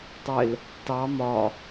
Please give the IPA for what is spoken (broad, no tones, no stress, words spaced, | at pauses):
tˤɪl | tɑ mɒ